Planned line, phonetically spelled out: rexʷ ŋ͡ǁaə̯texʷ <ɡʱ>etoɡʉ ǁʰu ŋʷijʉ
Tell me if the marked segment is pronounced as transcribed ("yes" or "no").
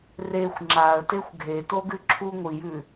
yes